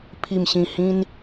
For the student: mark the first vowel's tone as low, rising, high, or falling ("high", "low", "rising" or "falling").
low